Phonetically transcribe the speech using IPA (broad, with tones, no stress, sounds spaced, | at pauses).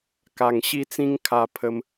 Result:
k a˨˩ ŋ ɕ i˦ t͡s ĩ˦ ŋ kʰ a˧ pʰ ə˧ m